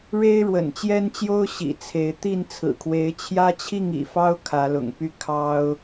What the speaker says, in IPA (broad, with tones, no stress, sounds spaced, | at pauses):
ɻ e˦ ɪ̯ ɻ w ə̰˨˩ n t͡ɕ j ɛ˦ n t͡ɕ j o˦ ʊ̯ ɕ ḭ˨˩ t͡sʰ e˨˦ ɪ̯ t̪ i˥˨ n t͡sʰ ɹ̩˨˩ kʰ w e˨˦ ɪ̯ t͡ɕʰ j ä˦ t͡ɕʰ i˥˨ ŋ ḭ˨˩ f ɑ˦ ʊ̯ kʰ ä˨˦ l ʊ̰˨˩ ŋ p y˥˨ kʰ ɑ˦ ʊ̯